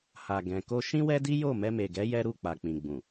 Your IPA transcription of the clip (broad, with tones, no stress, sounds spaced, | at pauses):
h a˨ ɡ ɛ̃˨ k o˧ ʃ ĩ˦ w ɛ˦ d i˦ j o˦˨ m ɛ˧ m e˨ ɡ ɛ˨˦ j ɛ˦ ɾ u˦˨ k͡p a˨ k͡p ĩ˨ ɡ͡b ũ˨